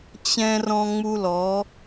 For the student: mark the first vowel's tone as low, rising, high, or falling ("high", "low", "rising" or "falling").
high